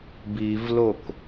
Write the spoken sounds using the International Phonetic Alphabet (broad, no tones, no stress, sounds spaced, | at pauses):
b i v l o k